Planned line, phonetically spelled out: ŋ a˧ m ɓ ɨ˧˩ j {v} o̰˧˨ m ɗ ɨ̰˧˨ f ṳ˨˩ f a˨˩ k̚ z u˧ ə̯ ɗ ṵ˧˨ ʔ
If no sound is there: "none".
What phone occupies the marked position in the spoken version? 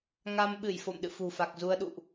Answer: f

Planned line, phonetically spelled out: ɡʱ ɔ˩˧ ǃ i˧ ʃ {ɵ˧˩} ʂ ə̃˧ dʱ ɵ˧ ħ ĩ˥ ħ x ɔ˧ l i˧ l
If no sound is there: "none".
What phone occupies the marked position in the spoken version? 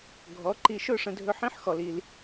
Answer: ɵ˥˧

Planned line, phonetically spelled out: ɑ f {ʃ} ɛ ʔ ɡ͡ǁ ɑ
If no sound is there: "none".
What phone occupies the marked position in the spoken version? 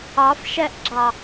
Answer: ʃ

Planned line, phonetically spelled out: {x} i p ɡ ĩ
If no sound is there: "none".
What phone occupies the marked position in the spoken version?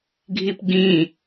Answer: ɡʱ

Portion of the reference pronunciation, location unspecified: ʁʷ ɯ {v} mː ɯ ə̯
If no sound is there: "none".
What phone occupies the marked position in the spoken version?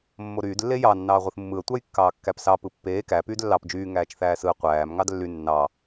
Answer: θ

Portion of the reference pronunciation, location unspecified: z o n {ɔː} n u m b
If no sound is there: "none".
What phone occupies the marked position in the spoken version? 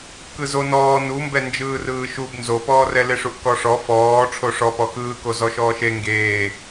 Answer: ɔː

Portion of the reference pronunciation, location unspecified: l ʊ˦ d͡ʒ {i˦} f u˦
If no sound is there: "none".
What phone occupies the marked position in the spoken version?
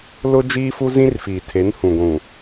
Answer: iː˦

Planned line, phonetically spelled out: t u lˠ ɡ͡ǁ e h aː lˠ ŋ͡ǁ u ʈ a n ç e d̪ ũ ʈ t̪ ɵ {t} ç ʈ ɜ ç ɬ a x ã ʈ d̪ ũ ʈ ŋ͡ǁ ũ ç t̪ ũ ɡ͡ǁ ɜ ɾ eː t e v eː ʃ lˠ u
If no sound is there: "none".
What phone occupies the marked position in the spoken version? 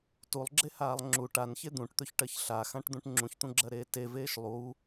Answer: none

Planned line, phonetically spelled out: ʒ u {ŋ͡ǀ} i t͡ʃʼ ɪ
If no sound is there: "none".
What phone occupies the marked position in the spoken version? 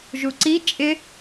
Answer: ǀ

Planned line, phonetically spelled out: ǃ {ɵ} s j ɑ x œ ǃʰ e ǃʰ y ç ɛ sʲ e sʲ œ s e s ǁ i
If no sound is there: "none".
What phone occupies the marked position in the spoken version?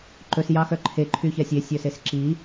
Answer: ɵ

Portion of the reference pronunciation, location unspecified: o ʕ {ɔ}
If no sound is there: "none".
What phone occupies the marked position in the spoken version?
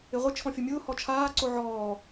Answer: ɔː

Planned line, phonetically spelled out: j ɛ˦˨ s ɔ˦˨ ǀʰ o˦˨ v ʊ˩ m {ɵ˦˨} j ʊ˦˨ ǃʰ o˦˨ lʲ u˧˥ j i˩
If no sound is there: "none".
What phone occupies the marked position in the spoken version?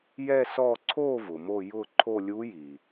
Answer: o˦˨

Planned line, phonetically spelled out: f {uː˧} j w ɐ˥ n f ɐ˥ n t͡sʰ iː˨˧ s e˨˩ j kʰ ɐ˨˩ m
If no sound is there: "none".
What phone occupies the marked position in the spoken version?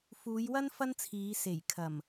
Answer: uː˨˧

